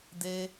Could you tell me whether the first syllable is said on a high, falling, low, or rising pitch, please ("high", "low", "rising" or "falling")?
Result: high